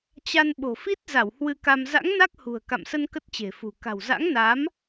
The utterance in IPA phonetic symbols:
t͡ɕ a˧ n ɓ o̤˨˩ f i˦˥ t̚ z a˧˩ w h w ɨ˧ k a˧ m z a̰˧˥ ŋ n a˦˥ k̚ h ṳ˨˩ ə̯ k a̰˧˨ m s ə˧ n k ə˦˥ t̚ t͡ɕ e̤˨˩ f ṳ˨˩ k a̤˨˩ w z a̰˧˥ ŋ n a˨˦ m

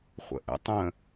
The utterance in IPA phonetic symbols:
χʷ ə̰ ʔ ə̰ tˤ ə̃

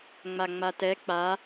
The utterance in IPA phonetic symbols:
ŋ͡m a ŋ͡m a t ɛ k͡p a

